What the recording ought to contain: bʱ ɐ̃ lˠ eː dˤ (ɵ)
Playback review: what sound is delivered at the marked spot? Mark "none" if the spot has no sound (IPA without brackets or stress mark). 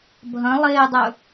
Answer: ɵ